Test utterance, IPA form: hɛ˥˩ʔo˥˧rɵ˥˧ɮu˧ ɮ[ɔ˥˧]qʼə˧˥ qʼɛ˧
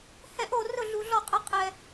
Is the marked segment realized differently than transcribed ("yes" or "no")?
no